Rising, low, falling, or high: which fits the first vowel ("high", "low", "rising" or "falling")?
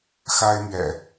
high